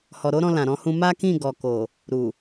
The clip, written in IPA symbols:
hɔ˨ɾo˨˦ɾɔ̃˧ lã˨ɾɔ̃˧hũ˧ ma˦kĩ˦˨ ɡɔ˨ko˨ | ɾu˨

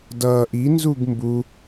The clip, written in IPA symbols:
dʌːʔ inzuɡ mbu

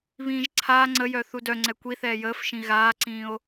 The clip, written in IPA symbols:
βĩːʒǀʰaː ŋ͡ǀəjœ θudœŋ͡ǀɛ kʷiθɛː jəːfʃĩ ɣaːǀĩːo̯

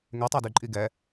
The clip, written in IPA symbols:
ŋɛtˤadyǃʼi ɡɛ

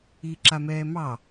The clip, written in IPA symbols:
iǁamɛːmɑ

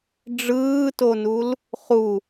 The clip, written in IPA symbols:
ɖ͡ʐɯːtonul | χu

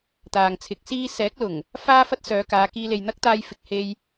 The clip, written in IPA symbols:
t̪aː˨ŋt͡sʰɪ˨˥k̚siː˥ sɛː˨˥k̚lʊ˨˩ŋ | faː˥fɐ˥t̚sœː˨˧kaː˨˧ kiː˧le˨jn̪ɐ˥k̚t̪aː˧j fɪ˨k̚he˧j

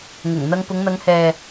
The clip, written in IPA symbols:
ŋʊ˨˩ŋ n̪ɐ˧ŋpʊ˨˧ŋn̪ɐ˨˧ŋhɛː˨

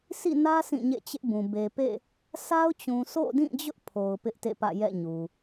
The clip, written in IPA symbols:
sʰḭ˦˨nä˦ sʰĩ˦˨ɲḛ˦˨t͡ɕɪ˦ʔbũ˨ be˨pḛ˦˨ | sʰa˦ʊ̯t͡ɕũ˨ so̰˦˨dĩ˦˨d͡ʑʊ˦ʔ pʰo˨ʊ̯pɪ˦ʔtḛ˦˨pä̰˦˨ jɛ̰˦˨ɲu˨

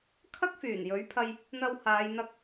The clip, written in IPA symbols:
kʰɐ˥k̚fyː˨˩njɵ˨˥ɥpʰɐ˧j | n̪ɐ˧whaː˨˧jn̪ɐ˧k̚

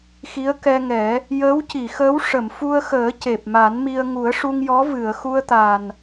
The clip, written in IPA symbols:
xi˧˥ə̯kɛ˧ŋɛ˨˩˦ | jəː˧˥wci˨˩˨xəː˧˥w ʂə˨˩˨mfu˧ə̯xəː˨˩˦ ce˨˩p̚ma˨˩˦nmi˧ə̯ ŋu˨˩˦ə̯ʂu˧ŋjɔ˧˥ vɨ˨˩˨ə̯xu˧ə̯t̪a˨˩n

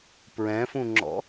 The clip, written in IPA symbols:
pɹɛ̃fũŋ͡ǁɔ̰

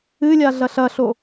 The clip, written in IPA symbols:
ɨlʲa ɮɐɬɐɬo

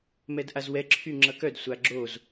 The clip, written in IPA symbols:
mɛdʔazwɛ ǁʰyŋ͡ǁʌkœd sʷaɡ͡ǁoz

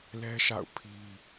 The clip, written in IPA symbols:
lɛ˦ʃa̰˦˨ʊ̯ pʰi˦

